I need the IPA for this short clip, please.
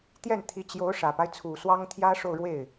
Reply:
t̪ j ɛ˥˩ n t̪ʰ i˧˥ t͡ɕ j o˧˥ ʊ̯ ʂ ä˨˩ p a˦ ɪ̯ t͡sʰ u˨˩ s w ɑ˥ ŋ t̪ʰ j ä˥ ʂ o˥˧ ʊ̯ ɻ w e˥˩ ɪ̯

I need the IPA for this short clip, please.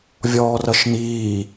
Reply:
vʲ ɔː r ʌ ʃ n̪ iː

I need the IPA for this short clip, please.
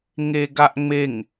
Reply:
ŋ e ɡ a ʔ ŋ͡m e ŋ

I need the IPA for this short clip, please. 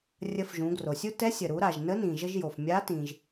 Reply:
rʲ ə˧ f ʒ ũ˩˧ ɡ r o˩ sʲ u˥ t ɛ˧˥ sʲ ə˩ ɾ u˩˧ ɾ a˩ ʒ n ə˧˥ n ĩ˩ ʒ ə˧ ʒ j o˩ f mʲ a˧˥ t ĩ˩ ʒ

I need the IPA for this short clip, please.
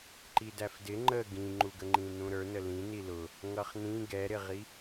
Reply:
ǃ i d æ f d ɪ ŋ͡ǃ ə ɡ ĩ ŋ͡ǃ u ɡ ə ŋ͡ǃ ĩ n ũ ɾ ə˞ n ə l ĩ n i l ʊ | ŋ ʌ χ n ĩ ɡ ɛ ɾ ɪ ʁ i

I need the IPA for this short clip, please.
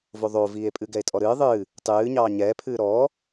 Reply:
v o ðˤ o v iː e̯ pʼ ɨ ɡ ɛ e̯ tʼ ɔ ɾ ɨː ðˤ ɨː | tˤ ɨː ɲ ɑː ɲ ɛː pʰ ɨː ɾ ɔː

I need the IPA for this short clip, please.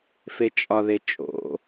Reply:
f e t͡ʃʼ ɒ ð e t͡ʃʼ o̰

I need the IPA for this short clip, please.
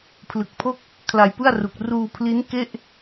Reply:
pʰ l ɯ˨˩ k̚ pʰ o˥˩ k̚ | kʰ l a˧ j p ɯ˥˩ a̯ r u˨˩ k̚ r uː˧ pʰ l i˦˥ n k e˥˩ ʔ

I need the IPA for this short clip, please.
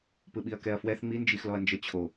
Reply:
p ɯ ɓ i ɐ̯ k ɛ ɐ̯ f w ɛ θ ŋ͡m i n d͡ʒ i x l ɔ ɐ̯ n d͡ʒ ə t͡ɕʰ o

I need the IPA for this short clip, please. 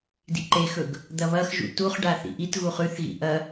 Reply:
d ḭ ǃ e x ɵ ɡ | d̪ ɐ β ɐ x ʒ ṵ t u χ ɖ a θ ḭ ʔ i t ɣ u χ ʉ θ ɣ ḭ ʔ ɐ

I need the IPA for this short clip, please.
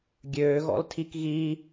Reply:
ɡʲ øː ɣ ɔ̰ l tʰ i k ɣ i

